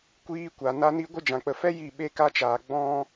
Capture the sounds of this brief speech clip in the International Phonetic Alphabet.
kʷ iː˦ kʷ a˨ n a˧ n i˧ ɡʷ ɨ˧ d͡ʒ ã˨ k͡p ə˨ f ɛ˦ j i˦˨ ɓ e˦ k a˦ t͡ʃ aː˨ ɡ͡b ɔ̃˦

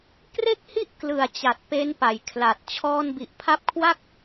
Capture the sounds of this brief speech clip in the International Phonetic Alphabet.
k r e˥˩ k̚ h i˥˩ ʔ k l ɯ˨˩ a̯ t͡ɕ a˨˩ t̚ p e˦˥ n p a˩˦ j kʰ l a˨˩ t̚ t͡ɕʰ ɔː˧ n b i˨˩ ʔ pʰ a˦˥ p̚ kʰ w a˥˩ k̚

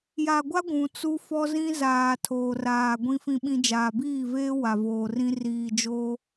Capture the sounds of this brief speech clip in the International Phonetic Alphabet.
j a˨ ɡʷ a˦ ɡʷ ũ˨ t͡s u˦ f ɔ˦ z ĩ˦ z aː˨ tʰ oː˨ r aː˨ ɡʷ ĩ˦ f ĩ˨ ɓ ĩ˨ d͡ʒ aː˨ b iː˦˨ v eː˦ w a˨ v oː˨ r ĩ˦ r iː˨ d͡ʒ oː˦

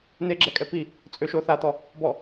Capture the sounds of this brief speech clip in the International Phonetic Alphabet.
n e ɡ͡ǁ ɛ kʼ ɛ p i | t͡sʼ ø ʃ o θ a t̪ ɔ | b ɔ

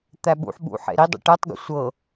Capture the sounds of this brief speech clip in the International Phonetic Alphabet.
t̪ æ ɓ ṵ ħ ɓ ṵ ħ ḛ ɾ i dˤ ṵ ʈ ɛ tˤ ɡ ṵ sʷ ɤ

